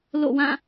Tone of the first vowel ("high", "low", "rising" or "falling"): falling